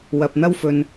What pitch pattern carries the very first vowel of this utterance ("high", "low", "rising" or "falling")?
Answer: low